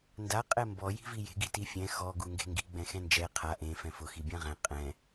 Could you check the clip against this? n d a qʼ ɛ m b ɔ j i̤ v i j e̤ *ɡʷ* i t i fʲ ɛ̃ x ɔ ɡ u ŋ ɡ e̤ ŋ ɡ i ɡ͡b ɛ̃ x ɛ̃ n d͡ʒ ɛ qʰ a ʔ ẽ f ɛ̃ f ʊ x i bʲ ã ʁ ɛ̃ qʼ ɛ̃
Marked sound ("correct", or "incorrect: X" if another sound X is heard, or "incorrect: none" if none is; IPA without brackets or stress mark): incorrect: ɡ